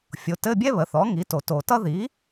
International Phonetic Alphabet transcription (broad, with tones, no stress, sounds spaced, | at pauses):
fʲ o˩˥ t ɘ˧˥˧ bʲ ɛ˥ β ə˩˥ θ ɔ˩˥ ŋ i˩˥ t o˨˩˦ t o˨ t ʌ˥ ð i˩˥